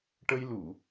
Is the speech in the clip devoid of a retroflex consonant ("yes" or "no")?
no